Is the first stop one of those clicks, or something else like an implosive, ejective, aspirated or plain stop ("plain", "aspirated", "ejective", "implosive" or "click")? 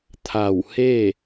aspirated